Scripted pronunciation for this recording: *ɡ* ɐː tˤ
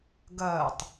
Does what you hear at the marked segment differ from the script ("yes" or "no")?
no